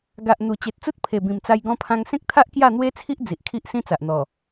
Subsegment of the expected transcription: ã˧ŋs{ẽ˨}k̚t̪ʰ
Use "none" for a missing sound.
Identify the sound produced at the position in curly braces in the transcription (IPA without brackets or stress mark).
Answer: ẽ˦